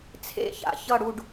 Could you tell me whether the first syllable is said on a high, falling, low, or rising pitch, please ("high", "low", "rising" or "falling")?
falling